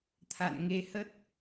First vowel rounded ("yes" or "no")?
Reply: no